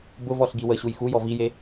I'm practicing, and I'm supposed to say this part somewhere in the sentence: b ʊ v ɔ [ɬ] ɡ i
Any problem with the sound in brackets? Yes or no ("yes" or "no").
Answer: no